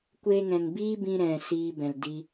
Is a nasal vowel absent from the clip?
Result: no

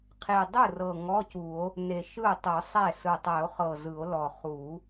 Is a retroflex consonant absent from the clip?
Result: yes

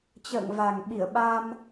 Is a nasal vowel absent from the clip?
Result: yes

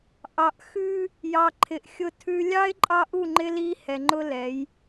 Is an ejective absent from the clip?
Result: no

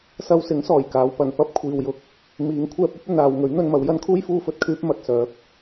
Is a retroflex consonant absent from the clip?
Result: yes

